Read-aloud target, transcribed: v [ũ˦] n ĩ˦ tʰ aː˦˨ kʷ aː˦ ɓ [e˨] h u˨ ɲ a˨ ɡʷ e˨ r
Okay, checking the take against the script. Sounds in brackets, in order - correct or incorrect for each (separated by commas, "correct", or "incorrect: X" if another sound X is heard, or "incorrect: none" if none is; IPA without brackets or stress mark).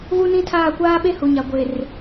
incorrect: u˦, incorrect: e˦